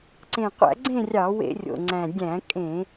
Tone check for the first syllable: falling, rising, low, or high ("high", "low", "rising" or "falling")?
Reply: low